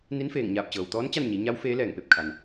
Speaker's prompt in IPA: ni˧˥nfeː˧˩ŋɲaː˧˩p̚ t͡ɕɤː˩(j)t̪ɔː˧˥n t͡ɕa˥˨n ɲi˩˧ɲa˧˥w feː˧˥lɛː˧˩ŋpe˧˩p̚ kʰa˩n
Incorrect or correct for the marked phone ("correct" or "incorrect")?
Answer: incorrect